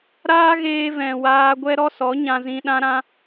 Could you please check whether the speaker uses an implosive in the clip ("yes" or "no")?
yes